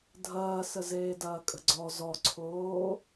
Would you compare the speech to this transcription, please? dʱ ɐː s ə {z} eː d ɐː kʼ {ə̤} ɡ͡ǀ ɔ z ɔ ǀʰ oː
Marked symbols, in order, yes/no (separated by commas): yes, yes